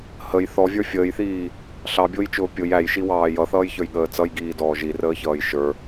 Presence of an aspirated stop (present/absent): absent